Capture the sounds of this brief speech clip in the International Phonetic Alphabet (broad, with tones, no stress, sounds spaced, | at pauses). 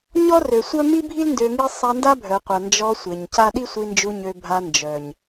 ɲ ɔ˦ r ø˨ sʷ œ˦ m i˦ bʱ i˦ l n d ø˧ ŋ i˦ sˤ a˧ n d a˦ bʱ œ˨ qʷ a˨ n d͡ʒ ɔ˧ sʷ e˨ ɲ c a˦ ɗ i˦ sʷ i˧ n d͡ʒ u˧ ɲ ø˧ bʱ a˧ n d͡ʒ œ˨ ɲ